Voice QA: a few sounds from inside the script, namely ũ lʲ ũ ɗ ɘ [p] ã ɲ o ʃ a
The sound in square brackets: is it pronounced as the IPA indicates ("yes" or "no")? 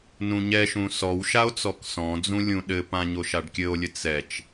yes